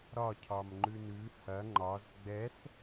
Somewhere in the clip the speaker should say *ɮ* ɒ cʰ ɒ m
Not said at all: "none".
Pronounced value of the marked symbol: ɾ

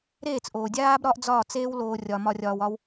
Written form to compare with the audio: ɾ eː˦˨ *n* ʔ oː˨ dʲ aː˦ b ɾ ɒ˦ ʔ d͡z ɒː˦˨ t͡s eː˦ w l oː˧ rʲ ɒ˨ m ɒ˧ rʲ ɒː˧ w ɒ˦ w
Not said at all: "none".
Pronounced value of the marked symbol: t͡s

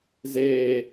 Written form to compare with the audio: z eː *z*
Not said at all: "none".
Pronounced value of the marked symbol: none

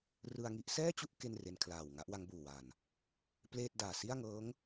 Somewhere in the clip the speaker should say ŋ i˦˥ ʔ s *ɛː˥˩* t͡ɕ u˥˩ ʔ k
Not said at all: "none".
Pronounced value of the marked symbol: ɛː˥˩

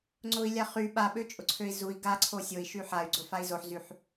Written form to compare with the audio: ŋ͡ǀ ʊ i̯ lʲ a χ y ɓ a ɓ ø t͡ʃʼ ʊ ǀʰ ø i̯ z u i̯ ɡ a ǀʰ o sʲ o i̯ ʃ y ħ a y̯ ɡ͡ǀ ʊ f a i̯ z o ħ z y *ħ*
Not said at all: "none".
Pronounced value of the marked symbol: ħ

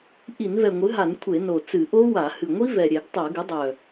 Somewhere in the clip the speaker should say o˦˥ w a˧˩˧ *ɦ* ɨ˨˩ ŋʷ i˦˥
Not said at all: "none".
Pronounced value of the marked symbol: h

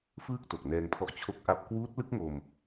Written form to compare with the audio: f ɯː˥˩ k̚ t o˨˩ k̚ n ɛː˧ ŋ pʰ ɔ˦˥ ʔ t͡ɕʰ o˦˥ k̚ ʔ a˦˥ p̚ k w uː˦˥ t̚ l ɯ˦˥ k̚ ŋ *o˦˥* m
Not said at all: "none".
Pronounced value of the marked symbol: o˧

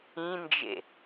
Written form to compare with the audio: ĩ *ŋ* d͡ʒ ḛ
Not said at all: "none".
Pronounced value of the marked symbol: n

